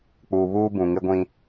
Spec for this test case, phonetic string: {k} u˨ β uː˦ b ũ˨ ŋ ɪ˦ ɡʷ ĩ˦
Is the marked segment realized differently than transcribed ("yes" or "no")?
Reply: yes